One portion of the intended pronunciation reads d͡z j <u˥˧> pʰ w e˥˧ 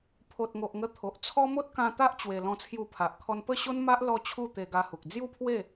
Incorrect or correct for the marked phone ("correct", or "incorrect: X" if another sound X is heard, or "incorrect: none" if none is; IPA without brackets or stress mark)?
correct